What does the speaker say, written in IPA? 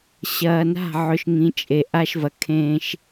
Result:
ɕ ɐː˨ n a̤˦˨ ʕ ɵ˨ ʃ ŋ ĩ˨ t͡ʃʼ e˨ ʔ a˦ ʃ v ɐ˨ kʰ ẽː˦ ʃ

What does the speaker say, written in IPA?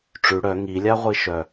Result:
ʈ͡ʂ ʉ ɽ œ ŋ i lʲ a ʁʷ i ʃ œ

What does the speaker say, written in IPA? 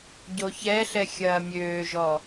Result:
ɟ o ç ɛ ɬ ɛ xʲ ɐː mʲ øː ʒ ɔ

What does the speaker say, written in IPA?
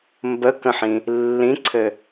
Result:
m b ə k ə̃ ħ ĩ | lː ĩ ǀʰ ɘ

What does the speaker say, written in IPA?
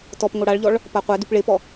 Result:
t ɔ p ŋ o ɽ a ɭ ʎ ɔ ɭ | p a qʷ ɛ d u p ɭ e p ɔ

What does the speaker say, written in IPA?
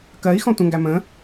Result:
k ɜ i̯ x ɔ̃ tʷ ə̃ ŋ ɡ æ m ə̃

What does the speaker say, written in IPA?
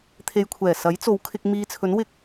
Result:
t̪ʰ e˧ j kʷʰ ɛː˨˩ s ɐ˨˥ j t͡s o˨˧ w kʰ ɪ˧ k̚ m iː˧ t͡sʰ ɵ˨˥ n w ɪ˧ k̚

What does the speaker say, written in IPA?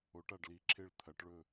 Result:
o˩˧ ʈ a˧˩ ɖ l i˩˧ ǁʰ e˧˩ ɭ t̪ʰ ɐ˩˧ ʈ ɭ ɵ˧˩

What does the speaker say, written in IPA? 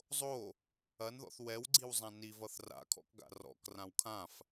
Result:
zˤ o | ɐ n ð ɔ̰ θ w ɛ w ɡ͡ǀ i w zˤ ã n i v ʌ θ r a̰ kʰ ɔ̰ k ɡ a̰ r ɔ̰ k r ã w kʰ ã f

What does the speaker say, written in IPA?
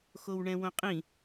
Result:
x o w ɳ ɛ̃ w õ qʼ ĩ

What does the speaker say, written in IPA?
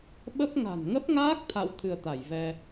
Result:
ɓ ə˦˥ p̚ ŋ a̤˨˩ n ŋ ə˦˥ p̚ ŋ aː˦˥ k̚ t̪ʰ a̰˧˨ w t̪ʰ ɨ˧ ə̯ t̪ a˧˩ j v ɛ˧

